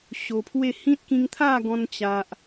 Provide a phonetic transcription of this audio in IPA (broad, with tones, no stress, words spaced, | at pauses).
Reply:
ɕo˧pʰwe˥˧ hĩ˦t̚kĩ˧ŋt̪ʰa˥˧ ɡɔ̃˧nt͡ɕa˨ʔ